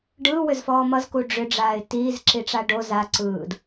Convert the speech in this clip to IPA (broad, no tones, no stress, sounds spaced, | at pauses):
ɖ ɯː w ʏ z f ɔː m ʌ z k u ɖ͡ʐ ʏ ɖ͡ʐ aː ɪ̯ t iː z ǁ i ʈ͡ʂ a ɖ o z a ǀ ɯː d